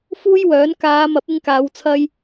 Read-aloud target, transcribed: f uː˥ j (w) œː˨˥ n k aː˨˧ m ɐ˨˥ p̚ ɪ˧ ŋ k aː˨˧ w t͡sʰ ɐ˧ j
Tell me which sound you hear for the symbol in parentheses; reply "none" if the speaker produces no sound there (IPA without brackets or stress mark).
w